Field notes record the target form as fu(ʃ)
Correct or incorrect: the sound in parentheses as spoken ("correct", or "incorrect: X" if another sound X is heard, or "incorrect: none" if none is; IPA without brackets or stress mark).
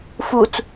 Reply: incorrect: t͡s